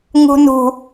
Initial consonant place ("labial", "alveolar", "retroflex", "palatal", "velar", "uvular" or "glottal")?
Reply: velar